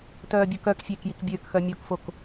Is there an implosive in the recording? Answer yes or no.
no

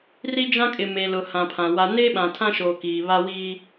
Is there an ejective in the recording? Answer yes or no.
yes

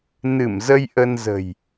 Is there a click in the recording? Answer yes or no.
no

